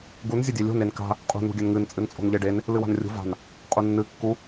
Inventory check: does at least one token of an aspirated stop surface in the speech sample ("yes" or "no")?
no